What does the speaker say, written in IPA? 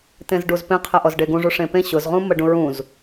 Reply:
t ẽ z ɖ u z p ẽ qʰ ə ʔ ɔ z ɖ e ɡ ũ ʐ u ʂ ẽ p ẽ ɕ ʊ z ʁ ũ m ə ɖ ũ ɹ ũ z

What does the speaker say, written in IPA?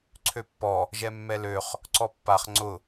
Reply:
ǀʰ ø pː ɔ | ʒ ɛ mː ɛ l ø χ | ǀ ɔ pː a χ ŋ͡ǀ ʊ

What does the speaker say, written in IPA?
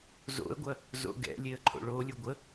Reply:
z o̰ ə̯ ɡʷ ɐ | z o̰ ɡ ɛ̰ lʲ e ə̯ ǃʰ o̰ ɭ o lʲ u ɡʷ ə

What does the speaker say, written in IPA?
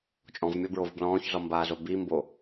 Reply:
t͡ʃʼ ɔ̃ v mʲ ɔ b ɹ o v b l ɔ̃ː ç z ɔ m b aː z o b i m b o

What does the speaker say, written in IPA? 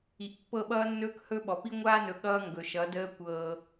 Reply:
i˨ ʔ pː ɤ˦˨ ɓ ʌː˦ nː ɵː˦ k h ɵ˦ ɓ ɔ˨ p i˦ ŋʷ aː˦ n ɵ˨ ɠ ʌː˦ ŋ ɡ ɵ˨ ʃ ʌ˨˦ d əː˦ kʷ ɤː˦

